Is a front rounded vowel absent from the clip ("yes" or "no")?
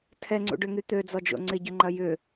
no